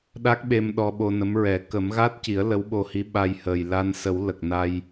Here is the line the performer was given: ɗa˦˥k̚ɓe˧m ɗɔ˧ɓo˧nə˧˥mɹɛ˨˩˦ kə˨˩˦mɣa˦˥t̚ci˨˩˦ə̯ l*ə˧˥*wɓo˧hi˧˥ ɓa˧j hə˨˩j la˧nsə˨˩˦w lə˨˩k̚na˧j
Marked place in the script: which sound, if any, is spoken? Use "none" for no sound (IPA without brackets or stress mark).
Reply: ə˧˥